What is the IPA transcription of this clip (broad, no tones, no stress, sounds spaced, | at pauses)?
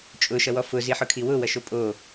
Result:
t͡ʃʼ ʊ ʃ ʌ w ɔ f ʊ z i ħ ʊ kʰ i w ʊ w ʌ ʃ o pʼ o